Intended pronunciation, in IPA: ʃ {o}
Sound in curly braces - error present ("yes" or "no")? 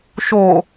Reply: no